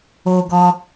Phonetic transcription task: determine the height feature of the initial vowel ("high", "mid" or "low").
mid